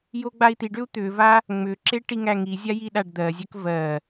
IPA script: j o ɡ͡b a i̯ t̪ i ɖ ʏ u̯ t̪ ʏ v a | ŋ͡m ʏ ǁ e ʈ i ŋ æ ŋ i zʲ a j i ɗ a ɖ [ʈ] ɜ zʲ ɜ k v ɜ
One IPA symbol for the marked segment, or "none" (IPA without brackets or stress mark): d̪